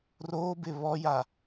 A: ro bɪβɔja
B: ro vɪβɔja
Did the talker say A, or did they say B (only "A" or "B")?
A